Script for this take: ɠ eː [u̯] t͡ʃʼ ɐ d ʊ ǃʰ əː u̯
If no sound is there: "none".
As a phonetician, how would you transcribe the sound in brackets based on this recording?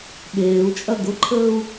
u̯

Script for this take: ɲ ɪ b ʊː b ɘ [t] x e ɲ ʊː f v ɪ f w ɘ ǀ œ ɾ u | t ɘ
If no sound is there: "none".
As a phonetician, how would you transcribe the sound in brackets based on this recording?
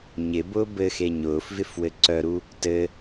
none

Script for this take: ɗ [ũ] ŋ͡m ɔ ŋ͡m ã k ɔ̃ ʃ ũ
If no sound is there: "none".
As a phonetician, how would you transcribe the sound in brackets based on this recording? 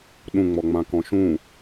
ũ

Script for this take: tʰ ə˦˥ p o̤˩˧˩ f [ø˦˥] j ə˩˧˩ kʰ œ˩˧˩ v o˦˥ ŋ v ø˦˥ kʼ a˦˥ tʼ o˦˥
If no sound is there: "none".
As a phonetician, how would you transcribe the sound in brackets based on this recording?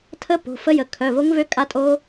ə˦˥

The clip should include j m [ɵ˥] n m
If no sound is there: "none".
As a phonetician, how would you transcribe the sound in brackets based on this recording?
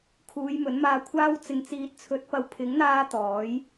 ɵ˨˥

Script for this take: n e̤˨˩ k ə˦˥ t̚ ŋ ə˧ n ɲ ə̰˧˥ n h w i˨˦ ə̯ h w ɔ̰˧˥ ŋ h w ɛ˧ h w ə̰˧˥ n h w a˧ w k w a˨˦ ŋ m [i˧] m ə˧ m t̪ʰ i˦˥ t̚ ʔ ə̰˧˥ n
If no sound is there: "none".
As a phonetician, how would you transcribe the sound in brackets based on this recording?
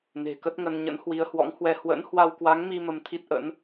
i˧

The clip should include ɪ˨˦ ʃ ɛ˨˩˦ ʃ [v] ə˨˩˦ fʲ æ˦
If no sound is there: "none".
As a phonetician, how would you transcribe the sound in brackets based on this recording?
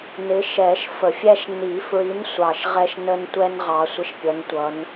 f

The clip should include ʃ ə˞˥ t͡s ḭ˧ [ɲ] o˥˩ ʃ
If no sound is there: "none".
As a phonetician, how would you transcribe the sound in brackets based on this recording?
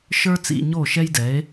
ɲ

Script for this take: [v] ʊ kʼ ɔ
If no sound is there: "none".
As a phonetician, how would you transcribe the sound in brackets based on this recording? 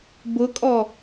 b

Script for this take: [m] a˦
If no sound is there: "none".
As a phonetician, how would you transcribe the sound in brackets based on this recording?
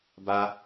b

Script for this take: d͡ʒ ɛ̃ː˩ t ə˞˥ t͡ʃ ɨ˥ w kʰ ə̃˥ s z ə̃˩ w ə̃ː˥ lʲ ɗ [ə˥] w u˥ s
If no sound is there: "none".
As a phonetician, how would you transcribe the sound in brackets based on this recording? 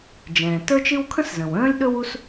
ɵ˥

